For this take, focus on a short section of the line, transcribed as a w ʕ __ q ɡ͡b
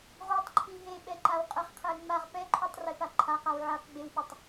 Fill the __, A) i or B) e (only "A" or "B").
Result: B